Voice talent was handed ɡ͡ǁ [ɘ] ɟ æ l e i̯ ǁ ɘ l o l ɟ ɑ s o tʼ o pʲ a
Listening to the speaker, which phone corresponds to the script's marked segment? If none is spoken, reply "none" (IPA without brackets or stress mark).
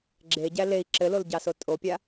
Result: e